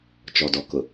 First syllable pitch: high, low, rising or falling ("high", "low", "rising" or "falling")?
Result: low